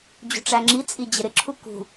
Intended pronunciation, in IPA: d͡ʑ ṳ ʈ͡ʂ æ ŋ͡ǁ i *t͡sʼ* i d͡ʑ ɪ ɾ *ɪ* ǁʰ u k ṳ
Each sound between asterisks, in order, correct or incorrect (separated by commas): correct, correct